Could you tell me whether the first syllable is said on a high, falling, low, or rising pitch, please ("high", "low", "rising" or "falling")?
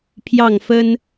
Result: falling